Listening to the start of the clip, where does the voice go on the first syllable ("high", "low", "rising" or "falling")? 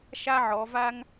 high